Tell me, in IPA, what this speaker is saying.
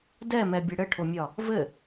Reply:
d ɛ m ɛ bʲ ɘ ɽ ɘ ʈʰ o mʲ ɒ | v ɘ

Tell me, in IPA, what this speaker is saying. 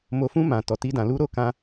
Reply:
m o˨ f ũ˧ m ã˨ t ɔ˨ t i˧ d ã˨ l u˧ ɾ o˧ k ã˧

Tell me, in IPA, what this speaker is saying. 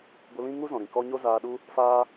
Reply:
ɡʷ ə˧ l ĩ˦ ŋ u˦ z ɔ̃˨ ɾ ĩ˨ k ɔ˦ ɲ o˦ z aː˧ ɗ u˦ | f aː˦

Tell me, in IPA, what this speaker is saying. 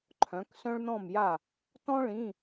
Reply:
ǃʰ œ̃˨˥ k s œ̃˥ ɭ n̪ ɔ̃˥˨ m j a˥˨ | t ɔ̃˥ ɭ ĩ˧˥˧

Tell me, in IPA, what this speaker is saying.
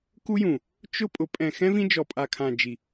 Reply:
k u˦ j ũ˨ | t͡ʃ ʊ˦ pʼ ʊ˨˦ pʼ ɛ̃˨ x ɛ̃˦ v ĩ˦ d͡ʒ ɔ˨ pʼ a˨ kʰ ã˨ d͡ʒ i˨

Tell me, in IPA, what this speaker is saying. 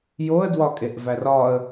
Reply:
j o ə̯ d w ɒ kʼ e ʔ v æ r ɒ ə̯

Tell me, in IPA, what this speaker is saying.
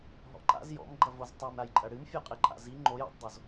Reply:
ɦ ɔ̰ ǃ a̰ z j ɔ̰ m ɡ͡ǃ ɐ v o z tˤ e m ɾ a j ǃʼ ɐ ɽ ɨ m fʲ ɔ qʼ e ǃʼ a̰ z i ŋ͡ǃ o j a̰ tˤ dˤ o z

